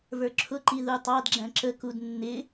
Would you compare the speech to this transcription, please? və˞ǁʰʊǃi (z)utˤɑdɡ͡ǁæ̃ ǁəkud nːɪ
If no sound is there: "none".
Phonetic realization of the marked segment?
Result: ð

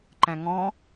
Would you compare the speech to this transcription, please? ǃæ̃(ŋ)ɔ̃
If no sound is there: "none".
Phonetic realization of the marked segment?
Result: ŋ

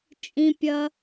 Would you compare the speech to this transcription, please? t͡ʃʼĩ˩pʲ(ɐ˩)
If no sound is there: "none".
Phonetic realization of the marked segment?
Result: ɐ˩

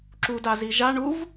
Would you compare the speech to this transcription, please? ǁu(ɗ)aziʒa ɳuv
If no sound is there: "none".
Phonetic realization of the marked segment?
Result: d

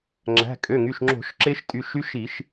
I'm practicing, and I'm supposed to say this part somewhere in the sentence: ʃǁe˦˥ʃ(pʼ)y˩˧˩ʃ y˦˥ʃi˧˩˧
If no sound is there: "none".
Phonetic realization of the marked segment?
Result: tʼ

